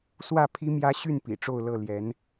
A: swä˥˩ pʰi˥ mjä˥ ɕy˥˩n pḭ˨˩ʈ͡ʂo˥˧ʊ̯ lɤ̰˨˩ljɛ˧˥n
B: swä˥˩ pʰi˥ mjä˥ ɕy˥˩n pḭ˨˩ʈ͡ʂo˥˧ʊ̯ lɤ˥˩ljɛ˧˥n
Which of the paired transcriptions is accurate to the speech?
B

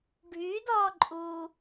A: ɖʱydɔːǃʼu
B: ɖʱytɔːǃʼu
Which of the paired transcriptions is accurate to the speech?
A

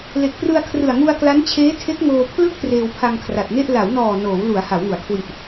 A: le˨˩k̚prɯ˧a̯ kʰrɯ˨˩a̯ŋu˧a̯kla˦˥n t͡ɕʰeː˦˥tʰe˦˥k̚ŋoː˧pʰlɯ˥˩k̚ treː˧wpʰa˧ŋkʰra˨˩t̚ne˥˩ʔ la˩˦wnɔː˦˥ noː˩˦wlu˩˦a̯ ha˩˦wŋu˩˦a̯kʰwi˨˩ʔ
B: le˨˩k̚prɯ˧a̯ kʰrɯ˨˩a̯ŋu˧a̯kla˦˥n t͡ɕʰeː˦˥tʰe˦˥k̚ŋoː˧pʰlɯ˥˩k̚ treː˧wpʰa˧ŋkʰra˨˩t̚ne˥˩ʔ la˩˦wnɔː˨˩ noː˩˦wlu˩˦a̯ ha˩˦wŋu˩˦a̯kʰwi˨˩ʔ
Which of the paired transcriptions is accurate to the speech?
B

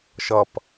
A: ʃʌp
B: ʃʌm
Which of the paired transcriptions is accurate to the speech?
A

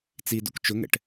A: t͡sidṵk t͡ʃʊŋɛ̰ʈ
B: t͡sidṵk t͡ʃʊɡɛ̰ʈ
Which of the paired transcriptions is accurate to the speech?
A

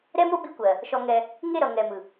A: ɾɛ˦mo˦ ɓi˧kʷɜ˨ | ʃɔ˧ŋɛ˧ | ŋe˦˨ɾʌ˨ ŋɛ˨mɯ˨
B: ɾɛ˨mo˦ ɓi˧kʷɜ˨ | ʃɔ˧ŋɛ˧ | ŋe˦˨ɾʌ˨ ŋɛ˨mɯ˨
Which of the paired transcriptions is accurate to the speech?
A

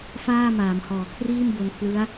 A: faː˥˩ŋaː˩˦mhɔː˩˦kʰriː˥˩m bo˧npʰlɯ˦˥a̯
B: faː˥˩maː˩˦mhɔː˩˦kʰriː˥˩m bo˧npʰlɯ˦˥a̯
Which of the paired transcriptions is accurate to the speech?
B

